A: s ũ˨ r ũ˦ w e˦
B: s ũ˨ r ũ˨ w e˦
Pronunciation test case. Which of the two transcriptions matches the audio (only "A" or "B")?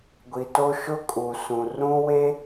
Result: A